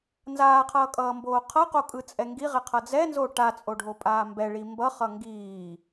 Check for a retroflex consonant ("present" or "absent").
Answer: present